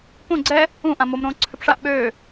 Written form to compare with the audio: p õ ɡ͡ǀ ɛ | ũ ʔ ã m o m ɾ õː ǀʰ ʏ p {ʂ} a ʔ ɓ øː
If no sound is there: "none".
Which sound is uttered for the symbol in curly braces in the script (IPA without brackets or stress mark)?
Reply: ʂ